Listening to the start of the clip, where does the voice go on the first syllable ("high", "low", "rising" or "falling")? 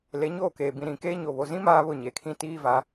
rising